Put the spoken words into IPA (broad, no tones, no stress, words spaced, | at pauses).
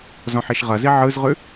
zɔ̃ħiʃʁɐzi ʕɯzʁʉ